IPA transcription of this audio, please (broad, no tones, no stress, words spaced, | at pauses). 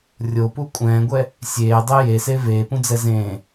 rʲopu kʷʼɛ̃ːɡʷɛ | sʲeːdˤe jese veːpũd͡zɛ zẽː